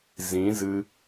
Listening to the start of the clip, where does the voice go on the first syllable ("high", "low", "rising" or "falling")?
rising